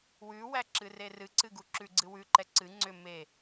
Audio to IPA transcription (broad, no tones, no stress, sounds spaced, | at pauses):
w ʉ w æ ǁ ɨ r e r ɨ ǀ ɨ ɡ u ǁ ʉ ɡ͡ǀ ɨ w ʉ ǃ ɛ ǀ ɨ ŋ͡ǀ ʏ m e